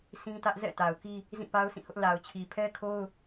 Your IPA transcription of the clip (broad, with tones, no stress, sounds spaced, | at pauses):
sʰ ĩ˦ t ä˦ ʔ z ɛ̰˦˨ t a˨ ʊ̯ k i˦ | z ĩ˦˨ p a˦ ʊ̯ s ĩ˦˨ h ʊ˦ ʔ l a˨ ʊ̯ t͡ɕʰ i˨ pʰ ɛ˦ kʰ o˦ ʊ̯